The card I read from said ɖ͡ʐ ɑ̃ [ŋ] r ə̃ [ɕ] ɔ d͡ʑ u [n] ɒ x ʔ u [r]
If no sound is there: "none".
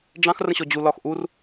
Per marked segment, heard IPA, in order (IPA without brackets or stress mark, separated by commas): x, ɕ, l, r